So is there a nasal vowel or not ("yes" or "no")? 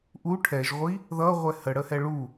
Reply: no